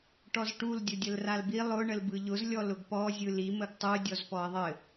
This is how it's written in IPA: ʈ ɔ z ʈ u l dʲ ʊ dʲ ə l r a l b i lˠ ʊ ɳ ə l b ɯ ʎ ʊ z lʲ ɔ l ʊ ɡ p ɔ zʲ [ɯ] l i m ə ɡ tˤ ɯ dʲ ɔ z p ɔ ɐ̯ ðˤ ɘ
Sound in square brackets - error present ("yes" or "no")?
no